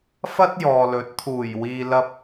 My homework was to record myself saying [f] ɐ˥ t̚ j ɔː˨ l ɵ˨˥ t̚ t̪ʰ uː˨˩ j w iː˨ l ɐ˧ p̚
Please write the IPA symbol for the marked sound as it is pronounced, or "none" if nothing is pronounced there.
f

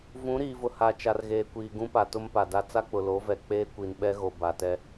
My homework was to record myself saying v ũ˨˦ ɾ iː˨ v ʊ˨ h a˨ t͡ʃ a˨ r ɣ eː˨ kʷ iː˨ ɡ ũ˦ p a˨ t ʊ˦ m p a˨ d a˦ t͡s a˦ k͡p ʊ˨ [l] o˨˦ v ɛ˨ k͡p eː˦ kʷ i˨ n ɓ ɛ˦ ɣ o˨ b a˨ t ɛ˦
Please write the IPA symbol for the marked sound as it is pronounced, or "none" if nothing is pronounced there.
l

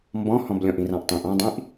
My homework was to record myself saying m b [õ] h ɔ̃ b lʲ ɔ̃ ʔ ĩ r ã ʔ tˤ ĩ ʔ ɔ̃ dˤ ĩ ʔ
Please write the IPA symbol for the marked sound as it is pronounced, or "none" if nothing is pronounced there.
ɔ̃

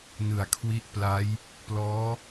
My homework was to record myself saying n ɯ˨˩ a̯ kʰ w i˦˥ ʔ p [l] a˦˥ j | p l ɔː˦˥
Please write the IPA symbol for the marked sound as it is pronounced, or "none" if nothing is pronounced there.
l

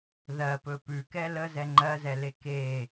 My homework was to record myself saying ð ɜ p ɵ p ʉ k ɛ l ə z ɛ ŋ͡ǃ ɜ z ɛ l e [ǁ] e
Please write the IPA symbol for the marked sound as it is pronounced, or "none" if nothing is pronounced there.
k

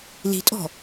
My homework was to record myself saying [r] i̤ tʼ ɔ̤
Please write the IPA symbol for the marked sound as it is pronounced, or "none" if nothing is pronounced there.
l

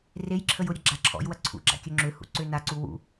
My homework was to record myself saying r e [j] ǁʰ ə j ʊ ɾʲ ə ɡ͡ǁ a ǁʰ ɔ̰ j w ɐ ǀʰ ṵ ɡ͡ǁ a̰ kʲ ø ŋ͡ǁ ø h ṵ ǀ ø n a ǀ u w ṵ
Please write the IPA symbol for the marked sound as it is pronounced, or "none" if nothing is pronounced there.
j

